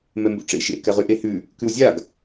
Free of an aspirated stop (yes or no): yes